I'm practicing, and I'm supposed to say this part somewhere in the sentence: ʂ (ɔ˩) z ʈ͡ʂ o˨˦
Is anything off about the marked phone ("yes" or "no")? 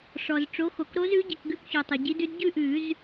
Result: no